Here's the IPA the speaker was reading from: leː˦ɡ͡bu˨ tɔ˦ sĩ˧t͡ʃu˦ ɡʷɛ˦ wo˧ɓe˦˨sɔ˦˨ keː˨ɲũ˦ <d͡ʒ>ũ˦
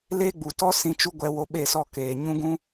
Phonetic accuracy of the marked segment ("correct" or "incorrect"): incorrect